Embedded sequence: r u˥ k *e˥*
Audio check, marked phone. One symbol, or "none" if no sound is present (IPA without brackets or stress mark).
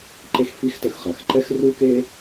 e˥